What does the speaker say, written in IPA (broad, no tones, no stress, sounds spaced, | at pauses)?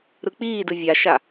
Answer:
ɾ ɯ k͡p iː d ɯ vʲ a ʃ a